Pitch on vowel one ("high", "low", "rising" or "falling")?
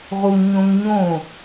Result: high